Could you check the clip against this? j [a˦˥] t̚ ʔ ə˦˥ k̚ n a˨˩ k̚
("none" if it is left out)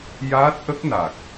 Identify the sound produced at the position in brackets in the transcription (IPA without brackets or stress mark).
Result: aː˦˥